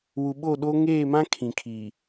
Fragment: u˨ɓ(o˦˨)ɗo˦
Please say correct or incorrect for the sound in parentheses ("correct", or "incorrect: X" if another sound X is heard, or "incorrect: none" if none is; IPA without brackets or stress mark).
correct